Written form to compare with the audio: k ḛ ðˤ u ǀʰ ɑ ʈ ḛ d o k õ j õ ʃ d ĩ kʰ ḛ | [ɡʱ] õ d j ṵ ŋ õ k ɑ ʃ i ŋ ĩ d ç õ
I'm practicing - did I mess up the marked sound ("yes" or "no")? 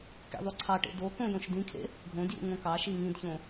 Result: no